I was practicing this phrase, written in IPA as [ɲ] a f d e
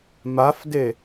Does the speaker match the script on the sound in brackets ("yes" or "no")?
no